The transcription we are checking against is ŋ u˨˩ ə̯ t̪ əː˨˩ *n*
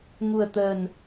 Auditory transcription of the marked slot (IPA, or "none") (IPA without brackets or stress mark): n